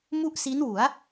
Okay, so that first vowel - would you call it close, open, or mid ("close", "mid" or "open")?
close